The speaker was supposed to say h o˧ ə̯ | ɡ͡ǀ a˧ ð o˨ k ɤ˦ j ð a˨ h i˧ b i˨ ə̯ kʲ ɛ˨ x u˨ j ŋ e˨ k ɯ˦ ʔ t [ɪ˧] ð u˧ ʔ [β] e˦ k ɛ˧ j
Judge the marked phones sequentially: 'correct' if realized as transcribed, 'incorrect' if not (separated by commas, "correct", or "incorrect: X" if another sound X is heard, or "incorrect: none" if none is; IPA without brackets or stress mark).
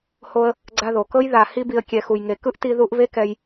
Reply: incorrect: i˧, correct